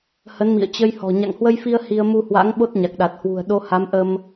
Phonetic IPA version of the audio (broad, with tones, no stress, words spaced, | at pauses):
hə˨˦nmḭ˧˨ə̯ t͡ɕə˧jhɔ̤˨˩ ɲa̰˧˨ŋhwə˧jfi˧ə̯ hi˧ə̯ mu˧hwa̰˧˥ŋ ɓo˦˥t̚ɲa˨˩k̚ɗa˨˩t̚hwṳ˨˩ə̯ ɗo˧ha˨˦m ʔə˧m